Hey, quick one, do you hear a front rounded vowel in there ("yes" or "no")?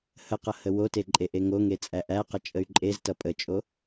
yes